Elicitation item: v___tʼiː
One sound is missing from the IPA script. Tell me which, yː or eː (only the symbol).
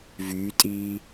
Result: yː